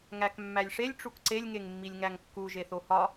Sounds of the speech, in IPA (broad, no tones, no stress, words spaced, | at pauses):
ŋækmːælʲʂelʲ ʈ͡ʂukǀelʲ ŋeŋmːilʲŋæŋkːu ʒeθohɒ